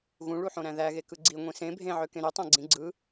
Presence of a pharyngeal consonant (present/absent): present